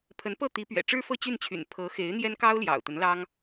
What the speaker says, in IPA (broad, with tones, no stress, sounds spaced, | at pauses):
pʰ ə˧˥ n p ɤ˥˩ t̪ i˧˥ p ɥ ɛ̰˨˩ ʈ͡ʂ ɻ̩˥ f ɤ˥˧ t͡ɕ y˥˩ n t͡ɕʰ y̰˨˩ n pʰ ɤ˧˥ x e˧˥ ɪ̯ n̪ j ɛ˥ n k ɑ˥ ʊ̯ l j ɑ̰˨˩ ʊ̯ t̪ ə˧˥ n l ɑ˥ ŋ